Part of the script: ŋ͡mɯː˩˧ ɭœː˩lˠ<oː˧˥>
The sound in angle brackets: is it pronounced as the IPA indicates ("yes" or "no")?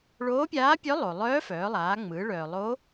no